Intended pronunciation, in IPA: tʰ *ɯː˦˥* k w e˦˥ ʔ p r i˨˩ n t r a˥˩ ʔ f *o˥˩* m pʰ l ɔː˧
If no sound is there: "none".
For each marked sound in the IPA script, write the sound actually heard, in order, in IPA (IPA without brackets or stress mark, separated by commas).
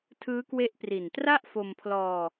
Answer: ɯː˦˥, o˧